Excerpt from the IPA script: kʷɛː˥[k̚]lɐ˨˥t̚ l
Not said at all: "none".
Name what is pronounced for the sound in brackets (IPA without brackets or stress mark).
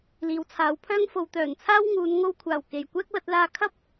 k̚